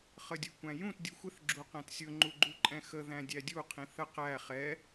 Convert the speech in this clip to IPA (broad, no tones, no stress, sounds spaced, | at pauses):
χ ə dʲ ʊ kʷ æ̃ j ũ t dʲ u xʷ ɪ θ ɡ͡ǁ u q æ̃ t sʲ ʊ ŋ͡ǃ u ɡ͡ǃ u ǃʼ ɛ̃ x ə ð æ̃ dʲ æ dʲ u qʰ ĩ θ ə q æ χ ɛ